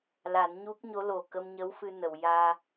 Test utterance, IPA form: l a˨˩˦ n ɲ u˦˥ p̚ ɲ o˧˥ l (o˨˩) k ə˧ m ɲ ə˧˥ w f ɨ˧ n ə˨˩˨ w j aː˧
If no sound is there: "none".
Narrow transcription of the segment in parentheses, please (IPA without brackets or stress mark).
o˨˩